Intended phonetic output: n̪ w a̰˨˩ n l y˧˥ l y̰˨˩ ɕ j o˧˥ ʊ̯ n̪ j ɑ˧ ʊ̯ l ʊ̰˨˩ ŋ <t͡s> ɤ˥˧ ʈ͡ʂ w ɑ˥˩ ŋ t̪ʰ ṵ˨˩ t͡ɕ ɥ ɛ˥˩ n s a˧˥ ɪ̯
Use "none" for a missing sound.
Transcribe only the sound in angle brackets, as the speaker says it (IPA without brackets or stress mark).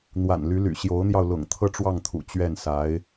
t̪ʰ